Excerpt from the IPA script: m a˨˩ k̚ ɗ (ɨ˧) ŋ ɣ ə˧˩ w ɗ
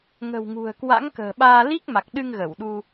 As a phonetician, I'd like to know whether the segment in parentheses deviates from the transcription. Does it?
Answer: no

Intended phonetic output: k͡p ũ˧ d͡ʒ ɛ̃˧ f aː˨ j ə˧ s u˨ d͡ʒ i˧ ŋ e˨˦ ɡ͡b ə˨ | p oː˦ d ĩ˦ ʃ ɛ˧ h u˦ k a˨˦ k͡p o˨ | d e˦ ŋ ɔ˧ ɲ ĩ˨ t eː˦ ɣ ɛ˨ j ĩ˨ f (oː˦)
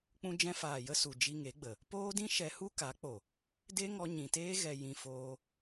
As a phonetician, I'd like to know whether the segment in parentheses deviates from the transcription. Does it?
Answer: yes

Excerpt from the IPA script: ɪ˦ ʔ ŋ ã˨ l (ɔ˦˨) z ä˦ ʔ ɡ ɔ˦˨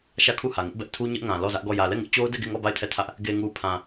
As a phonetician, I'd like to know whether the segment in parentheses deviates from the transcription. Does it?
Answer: no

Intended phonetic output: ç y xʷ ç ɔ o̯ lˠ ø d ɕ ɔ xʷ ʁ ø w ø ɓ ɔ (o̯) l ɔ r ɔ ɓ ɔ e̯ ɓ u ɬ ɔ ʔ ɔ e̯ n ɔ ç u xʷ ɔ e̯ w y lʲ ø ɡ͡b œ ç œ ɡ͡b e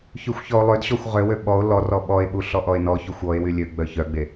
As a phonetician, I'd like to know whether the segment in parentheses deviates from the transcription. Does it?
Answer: no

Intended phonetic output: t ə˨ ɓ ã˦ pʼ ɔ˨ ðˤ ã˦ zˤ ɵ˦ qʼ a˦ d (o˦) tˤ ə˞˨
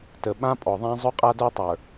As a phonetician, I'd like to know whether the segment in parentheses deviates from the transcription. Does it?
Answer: no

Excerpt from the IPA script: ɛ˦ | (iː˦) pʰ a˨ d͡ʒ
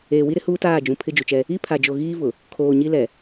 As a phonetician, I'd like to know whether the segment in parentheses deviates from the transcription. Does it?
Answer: yes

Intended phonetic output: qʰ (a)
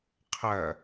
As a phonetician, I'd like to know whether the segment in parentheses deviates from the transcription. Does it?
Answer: yes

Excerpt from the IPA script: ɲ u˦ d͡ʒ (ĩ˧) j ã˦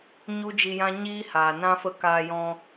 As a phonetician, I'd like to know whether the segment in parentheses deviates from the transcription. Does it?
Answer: yes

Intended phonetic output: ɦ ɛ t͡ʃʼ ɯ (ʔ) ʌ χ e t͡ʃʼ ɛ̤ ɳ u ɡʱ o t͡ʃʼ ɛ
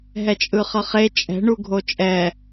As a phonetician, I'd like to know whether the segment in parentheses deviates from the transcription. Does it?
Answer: yes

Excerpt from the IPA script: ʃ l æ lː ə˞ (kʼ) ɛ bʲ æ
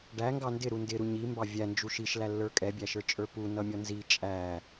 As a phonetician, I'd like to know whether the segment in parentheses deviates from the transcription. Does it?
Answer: no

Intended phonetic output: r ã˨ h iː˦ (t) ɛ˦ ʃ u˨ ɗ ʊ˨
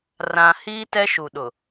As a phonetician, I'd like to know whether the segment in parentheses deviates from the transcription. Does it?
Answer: no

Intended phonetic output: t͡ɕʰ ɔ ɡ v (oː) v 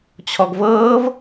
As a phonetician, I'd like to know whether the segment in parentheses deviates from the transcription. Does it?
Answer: yes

